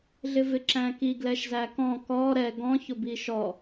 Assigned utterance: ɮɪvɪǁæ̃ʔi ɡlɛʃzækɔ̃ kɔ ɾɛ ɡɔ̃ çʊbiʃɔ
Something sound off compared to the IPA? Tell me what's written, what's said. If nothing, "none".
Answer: ʔ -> k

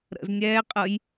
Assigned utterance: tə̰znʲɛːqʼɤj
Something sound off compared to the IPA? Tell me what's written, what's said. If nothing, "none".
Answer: t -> ɾ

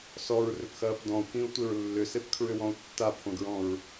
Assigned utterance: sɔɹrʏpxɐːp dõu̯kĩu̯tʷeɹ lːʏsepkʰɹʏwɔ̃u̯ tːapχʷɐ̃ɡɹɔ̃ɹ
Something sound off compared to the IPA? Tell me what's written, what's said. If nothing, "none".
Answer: õ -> ɔ̃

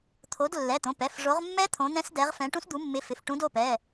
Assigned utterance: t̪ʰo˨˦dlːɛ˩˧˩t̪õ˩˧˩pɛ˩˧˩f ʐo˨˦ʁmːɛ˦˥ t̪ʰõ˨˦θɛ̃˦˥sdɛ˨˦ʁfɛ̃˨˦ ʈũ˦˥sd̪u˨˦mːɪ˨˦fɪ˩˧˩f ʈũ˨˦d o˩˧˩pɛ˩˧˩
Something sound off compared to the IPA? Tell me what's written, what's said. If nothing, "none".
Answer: θ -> n̪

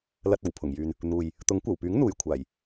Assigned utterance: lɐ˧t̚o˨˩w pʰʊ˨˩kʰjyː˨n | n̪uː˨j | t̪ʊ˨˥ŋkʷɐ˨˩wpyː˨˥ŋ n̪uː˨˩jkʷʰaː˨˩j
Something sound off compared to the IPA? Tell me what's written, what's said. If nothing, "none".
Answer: kʰ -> ŋ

